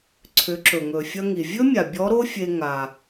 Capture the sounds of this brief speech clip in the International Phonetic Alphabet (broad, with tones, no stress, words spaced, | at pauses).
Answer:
ǀʰʏ˩˧ǁɵ˩ŋɵ˩ fʲɐ˧ŋi˩vʲɵ˥mʲa˩ bʲɔ˧˥ɾo˥fʲe˧ ŋa˩